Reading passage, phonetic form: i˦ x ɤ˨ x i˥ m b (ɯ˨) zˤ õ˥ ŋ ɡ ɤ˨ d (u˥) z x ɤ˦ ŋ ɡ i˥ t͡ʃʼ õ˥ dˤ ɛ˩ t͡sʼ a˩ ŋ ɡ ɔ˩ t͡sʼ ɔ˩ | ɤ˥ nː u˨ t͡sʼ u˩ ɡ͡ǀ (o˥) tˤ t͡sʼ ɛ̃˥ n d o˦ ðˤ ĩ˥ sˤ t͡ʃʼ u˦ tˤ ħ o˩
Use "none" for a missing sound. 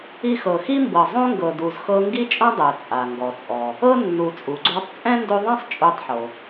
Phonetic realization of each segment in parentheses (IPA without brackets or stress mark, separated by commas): ɤ˨, u˨, o˦